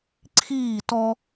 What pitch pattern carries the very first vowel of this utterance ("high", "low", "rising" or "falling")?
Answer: falling